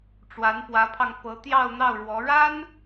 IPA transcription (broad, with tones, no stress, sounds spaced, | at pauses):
ʈ͡ʂ w a˧˥ n p w ä˧˥ pʰ ɑ˧ ŋ p ɤ˧˥ t̪ j ɑ˥˧ ʊ̯ n̪ ɑ˥˩ ʊ̯ ɻ w ɔ˧˥ ɻ a˥ n